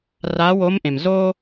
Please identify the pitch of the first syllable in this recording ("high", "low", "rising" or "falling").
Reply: rising